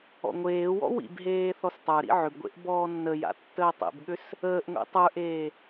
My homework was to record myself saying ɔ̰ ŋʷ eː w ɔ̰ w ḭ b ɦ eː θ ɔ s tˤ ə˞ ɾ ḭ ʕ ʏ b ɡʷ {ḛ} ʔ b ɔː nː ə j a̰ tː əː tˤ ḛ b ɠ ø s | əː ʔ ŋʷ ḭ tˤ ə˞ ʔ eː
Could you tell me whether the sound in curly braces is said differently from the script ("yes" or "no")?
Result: no